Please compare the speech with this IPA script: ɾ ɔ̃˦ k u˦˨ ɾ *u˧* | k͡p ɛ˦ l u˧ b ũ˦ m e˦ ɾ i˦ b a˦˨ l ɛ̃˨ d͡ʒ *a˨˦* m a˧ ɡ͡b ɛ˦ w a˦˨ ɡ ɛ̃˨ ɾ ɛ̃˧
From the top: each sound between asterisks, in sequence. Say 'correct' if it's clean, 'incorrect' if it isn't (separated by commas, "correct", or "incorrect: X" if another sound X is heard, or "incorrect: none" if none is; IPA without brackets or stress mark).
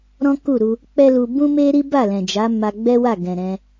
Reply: correct, correct